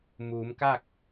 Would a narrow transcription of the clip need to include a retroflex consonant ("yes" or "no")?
no